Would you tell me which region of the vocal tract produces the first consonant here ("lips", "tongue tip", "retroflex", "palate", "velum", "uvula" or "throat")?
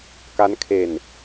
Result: velum